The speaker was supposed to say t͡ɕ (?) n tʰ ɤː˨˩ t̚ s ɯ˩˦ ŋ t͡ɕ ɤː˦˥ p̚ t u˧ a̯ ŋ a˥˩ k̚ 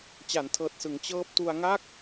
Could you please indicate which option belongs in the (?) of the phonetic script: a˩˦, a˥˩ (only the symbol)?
a˩˦